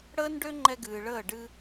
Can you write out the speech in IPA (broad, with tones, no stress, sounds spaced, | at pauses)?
ɽ əː˦ n ɖ ø˦ ŋ͡ǃ ɛ˧ ɡ ɨː˨ ɭ əː˦˨ ɖ ɨ˦